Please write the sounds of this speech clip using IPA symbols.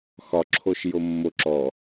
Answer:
x ɒ ǁʰ o ʃ j o mː o ǁ ɔ

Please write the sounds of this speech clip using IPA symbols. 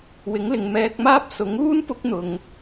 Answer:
w ɪ˨˥ ŋ l ɪ˨ ŋ m ɛː˧ k̚ m aː˥ p̚ s ʊ˨˥ ŋ uː˥ n p ʊ˧ k̚ n̪ ʊ˨ ŋ

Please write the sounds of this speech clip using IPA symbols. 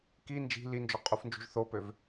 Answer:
k i n d͡ʒ i̤ l i n d͡ʒ o qʼ u f n d͡ʒ ṳ ʒ θ o p ø v

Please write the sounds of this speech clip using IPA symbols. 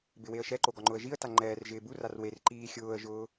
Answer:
b ɪ w e ə̯ ʃ ɛ ǃ o ɡ ɔ ŋ͡ǃ ʊ ə̯ ʒ i ə̯ t a ŋ͡ǃ ɛː r ʒ ɪː b u r a r w e r ǃ iː xʲ ʊː ə̯ ʒ ʊː

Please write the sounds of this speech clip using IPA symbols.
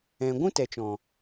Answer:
ɛ̃˨ ɡʷ ũ˦ t ɛ˨ t͡ʃ ɔ̃˨

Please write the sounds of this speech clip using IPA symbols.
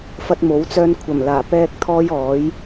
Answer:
f ɐ˧ t̚ m o˨˥ w t͡s œː˧ n kʷʰ ɐ˨˩ m l aː˨˩ p ɛː˧ k̚ t̪ʰ ɔː˧ j ɔː˨˥ j

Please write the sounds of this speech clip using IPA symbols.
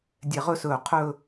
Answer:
dʲ ɛ˧˩ ʁ ɵ˥ s ɵː˧˩ qʰ ɵ˥˧

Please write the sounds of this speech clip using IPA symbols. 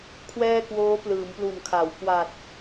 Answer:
kʰ w ɛː˥˩ k w oː˦˥ p l ɯː˩˦ m p l u˨˩ n kʰ a˩˦ w k w a˨˩ t̚

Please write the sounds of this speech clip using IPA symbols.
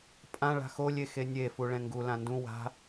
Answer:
pʼ ã ɭ a̤ x o lʲ e x e nʲ e f u ɭ ɛ̃ ŋ ɡ u l ã n d ũ w a̤

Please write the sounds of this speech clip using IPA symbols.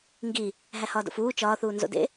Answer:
ŋ ɡ i | ɦ æ h ɒː d o̰ f uː t͡ʃ ɒː θ uː n z o̰ d ḛ

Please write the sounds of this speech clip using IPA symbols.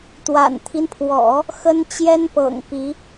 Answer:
t̪ w a̰˨˩ n t̪ʰ i˦ n pʰ w ɔ̰˨˩˦ | x ə˥ n t͡ɕ j ɛ˥ n p ɤ̰˨˩ ŋ p i˧˥

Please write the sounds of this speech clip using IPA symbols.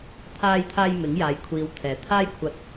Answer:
t̪ʰ aː˨ j t̪ʰ aː˨ j m ɪ˨˥ ŋ j aː˧ j kʷʰ iː˧ w t̪ʰ ɛː˨ t̪ʰ aː˥ j kʷʰ ɐ˧ t̚

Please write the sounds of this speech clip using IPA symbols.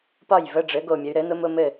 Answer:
p ɒ˥˩ j v ə˧˥˧ ɖ͡ʐ ɘ˩˥ ɡ o˧˩ mʲ ə˩˧ y̯ ɾ ɘ˩˥ n ʊ˧˥ m ʊ˧˥˧ m ɘ˥˩

